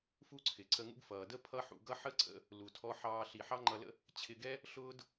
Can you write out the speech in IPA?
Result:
f u˥ ǀʰ ɪ˩ ǀ ə˧ ŋ ṵ˥ ɡ f ʌː˩ d ə˥ pʰ ʌ˥ ħ ṵ˧ ɡ ʌ˥ ħ ə˥ ǀ ə̰˧ | l u˩ tʰ ɔ˧ ħ ɑː˧ ɬ i˩ ħ ɑ˥ ŋ͡ǃ ʌ˧ l ə̰˥ | t͡ɕʰ ɪ˧ ɡ ɛ˥ | ɬ ʊː˥ d

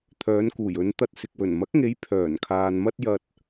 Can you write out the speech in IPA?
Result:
t̪ʰ œː˨˧ n k uː˨˩ j ɵ˨˧ n t̪ ɐ˧ t̚ s ɪ˨ k̚ w ɵ˨˩ n m ɐ˨˥ k̚ ŋ e˨˧ j pʰ œː˨˩ n kʰ aː˨ n m ɐ˥ t̚ j ɐ˧ t̚

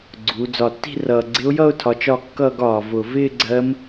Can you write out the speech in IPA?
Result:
ɡ͡ǀ u˩˧ d͡z ɒ˨˩ tː i̤˥˧ r ʌː˨˩ ɡ͡ǀ ɪ˧˥ ʊ̯ j ʌ˥˧ ʊ̯ tʰ ɒ˩˧ t͡ʃ ɒ˥˧ kː ʌː˥˧ ɡ ɒː˨˩ v ʊ˨˩ v ɪː˥˧ ɡ͡ǀ ɜ˧˥ m

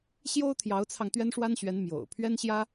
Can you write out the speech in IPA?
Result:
ɕ j o˥ ʊ̯ t̪ʰ j ɑ˧˥ ʊ̯ t͡sʰ ɑ˧ ŋ t̪ ɥ ɛ˥ n ʂ w a˥ n ɕ ɥ ɛ˧˥ n m j o̰˨˩ ʊ̯ pʰ ɥ ɛ˥ n ɕ j ä˥

